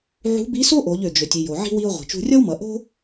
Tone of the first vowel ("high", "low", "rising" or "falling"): rising